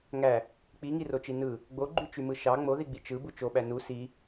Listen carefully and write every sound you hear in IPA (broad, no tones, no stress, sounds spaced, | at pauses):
ŋ æ | k͡p i ŋ i r o t͡ʃ i n ɯ | ɡ͡b o ɡ͡ǃ y t͡ʃ y m ɯ ʃ ɑ ŋ͡m o ð i ɡ͡b i t͡ʃ ɯ b u t͡ʃ o ɓ æ n u s i